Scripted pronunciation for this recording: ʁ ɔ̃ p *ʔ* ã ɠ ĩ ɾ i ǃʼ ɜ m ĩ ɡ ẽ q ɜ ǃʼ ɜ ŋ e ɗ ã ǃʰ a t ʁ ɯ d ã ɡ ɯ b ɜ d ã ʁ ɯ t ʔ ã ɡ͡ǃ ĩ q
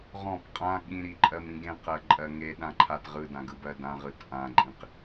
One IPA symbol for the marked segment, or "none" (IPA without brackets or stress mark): qʼ